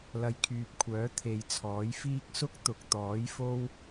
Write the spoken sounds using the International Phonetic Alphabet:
l ɐ˨˧ j kʰ yː˨ p̚ kʷʰ œː˨˥ t̪ʰ e˨˧ j t͡sʰ ɔː˨˥ j f iː˥ k̚ s ʊ˥ k̚ t̪ ʊ˨ k̚ t̪ ɔː˨˥ j f o˥ w

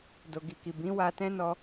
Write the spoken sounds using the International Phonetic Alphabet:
d o˨ ɡ i˨ k i˨ b ĩ˨˦ w a˧ t ɛ̃˦ n ɔ˧

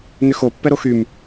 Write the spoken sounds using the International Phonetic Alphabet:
n ʏ x o pː ɛ ɾ o x y m

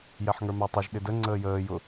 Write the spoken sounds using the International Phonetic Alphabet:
j ɛ ħ ŋ ə˞ m æ tˤ ʌ ʒ ɗ ɪ d ə ŋ͡ǀ əː j əː j ʊ

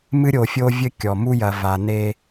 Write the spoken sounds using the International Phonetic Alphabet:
m ɨ˦ ɾʲ o˨ fʲ o˦ vʲ ɘ˦ kʲ ɔ˨ m u˦ j ɐ˨ v a˨ n e˦

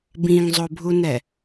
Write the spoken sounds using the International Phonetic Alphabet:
b ĩ ŋ zˤ o bʱ u n ɛ

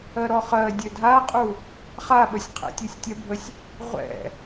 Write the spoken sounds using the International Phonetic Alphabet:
ɜ ɾ ɔ χ ɜ dʲ ø dʱ a qʼ u | χ a ɓ ə sʲ qʰ ɛ̰ tʲ u sʲ tʲ ɛ bʱ ə sʲ | ʁʷ ɛ̰

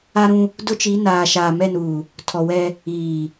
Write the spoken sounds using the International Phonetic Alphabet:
a˦ ɾ ũ˦ | d ʊ˦ t͡ʃ i˨˦ n aː˨ ʃ aː˨ m ɛ˦˨ n uː˨ | tʰ ɔ˨ w ɛ˦ | iː˨

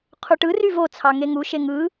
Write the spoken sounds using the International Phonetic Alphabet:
qʰ u ʈ ɯ r y v o t͡sʰ ɑ ŋ e ŋ u ʃ e ŋ ɯ

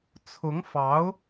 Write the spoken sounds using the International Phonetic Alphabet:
t͡sʰ ʊ˧˥ ŋ f ɑ˧˥ ʊ̯

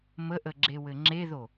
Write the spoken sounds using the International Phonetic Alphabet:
m ə ʔ ə ɡ͡ǁ e w ɘ ŋ͡ǁ e ð o

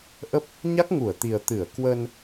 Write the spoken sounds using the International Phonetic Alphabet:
ʔ ə˦˥ p̚ | ɲ a˦˥ k̚ ŋ u˧˩ ə̯ t̪ i˨˩ ə̯ t̪ ɨ˧˩ ə̯ k w əː˧ n

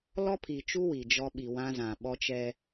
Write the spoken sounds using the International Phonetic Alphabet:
l ɔ˦ pʰ i˨ t͡ʃ u˦ w i˨ d͡ʒ ɔ˦ ɓ i˨ w ã˦ z ã˨ ɓ ɔ˦ t͡ʃ ɛ˦

